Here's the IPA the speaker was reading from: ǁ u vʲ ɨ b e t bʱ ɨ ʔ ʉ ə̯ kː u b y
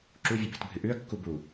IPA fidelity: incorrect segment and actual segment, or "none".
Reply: y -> u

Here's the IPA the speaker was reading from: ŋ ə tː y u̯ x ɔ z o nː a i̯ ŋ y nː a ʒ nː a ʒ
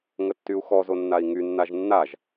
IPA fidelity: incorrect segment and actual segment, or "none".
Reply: none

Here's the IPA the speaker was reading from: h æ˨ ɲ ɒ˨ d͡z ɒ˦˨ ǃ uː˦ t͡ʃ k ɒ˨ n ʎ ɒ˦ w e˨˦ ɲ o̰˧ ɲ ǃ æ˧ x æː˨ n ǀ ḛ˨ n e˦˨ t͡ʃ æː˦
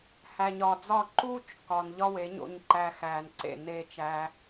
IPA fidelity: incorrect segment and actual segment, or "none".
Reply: none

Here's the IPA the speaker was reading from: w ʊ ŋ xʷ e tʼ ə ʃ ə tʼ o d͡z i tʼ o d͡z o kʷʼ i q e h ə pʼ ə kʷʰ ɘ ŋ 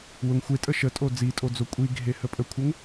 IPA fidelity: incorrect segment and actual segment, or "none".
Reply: q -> ɡʱ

